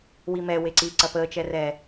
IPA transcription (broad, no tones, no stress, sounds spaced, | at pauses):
w i m ɛ w e ǀ i ǀ ɐ p əː t͡ʃ ɛ r ɛ